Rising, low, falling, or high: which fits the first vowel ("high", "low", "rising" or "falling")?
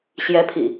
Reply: rising